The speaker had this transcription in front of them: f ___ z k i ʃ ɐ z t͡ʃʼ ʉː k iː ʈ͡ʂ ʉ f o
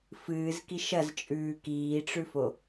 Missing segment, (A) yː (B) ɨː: B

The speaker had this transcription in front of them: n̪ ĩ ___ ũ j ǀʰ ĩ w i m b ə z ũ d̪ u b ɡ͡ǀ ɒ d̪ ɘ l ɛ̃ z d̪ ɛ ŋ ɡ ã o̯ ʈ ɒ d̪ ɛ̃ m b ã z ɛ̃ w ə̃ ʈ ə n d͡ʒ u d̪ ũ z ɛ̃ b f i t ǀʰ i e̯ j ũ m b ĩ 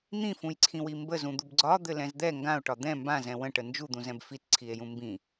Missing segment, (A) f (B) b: A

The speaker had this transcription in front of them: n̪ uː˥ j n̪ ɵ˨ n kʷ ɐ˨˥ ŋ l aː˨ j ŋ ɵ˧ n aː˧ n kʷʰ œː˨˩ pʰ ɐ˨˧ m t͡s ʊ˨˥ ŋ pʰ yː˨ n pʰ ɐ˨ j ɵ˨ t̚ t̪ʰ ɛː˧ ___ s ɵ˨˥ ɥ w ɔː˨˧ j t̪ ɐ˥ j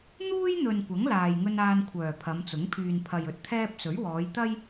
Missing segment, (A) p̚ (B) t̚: A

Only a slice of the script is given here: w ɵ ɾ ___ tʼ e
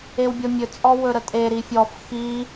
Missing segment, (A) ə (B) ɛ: A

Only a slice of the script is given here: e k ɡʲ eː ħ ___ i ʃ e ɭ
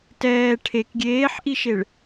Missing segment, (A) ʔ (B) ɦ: A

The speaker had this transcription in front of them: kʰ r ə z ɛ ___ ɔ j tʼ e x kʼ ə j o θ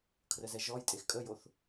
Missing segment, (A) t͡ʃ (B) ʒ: B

